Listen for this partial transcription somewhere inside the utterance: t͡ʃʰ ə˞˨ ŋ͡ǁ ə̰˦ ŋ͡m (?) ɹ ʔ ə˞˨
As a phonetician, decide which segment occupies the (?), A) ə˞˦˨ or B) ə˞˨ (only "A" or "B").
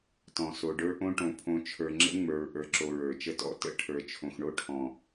B